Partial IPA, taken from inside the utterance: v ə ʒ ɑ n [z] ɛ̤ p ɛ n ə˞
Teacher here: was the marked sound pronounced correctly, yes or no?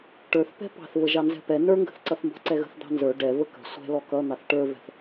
yes